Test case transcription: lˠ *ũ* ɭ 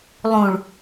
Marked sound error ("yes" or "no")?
no